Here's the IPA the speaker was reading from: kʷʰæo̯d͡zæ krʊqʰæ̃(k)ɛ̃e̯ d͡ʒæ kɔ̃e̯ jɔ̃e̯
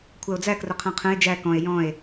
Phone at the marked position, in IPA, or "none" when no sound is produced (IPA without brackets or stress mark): qʰ